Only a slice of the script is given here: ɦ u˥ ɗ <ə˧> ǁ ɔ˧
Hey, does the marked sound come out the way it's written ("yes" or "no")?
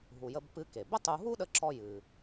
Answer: yes